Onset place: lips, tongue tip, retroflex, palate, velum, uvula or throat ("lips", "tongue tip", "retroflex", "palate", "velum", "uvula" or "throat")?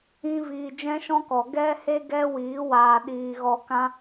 lips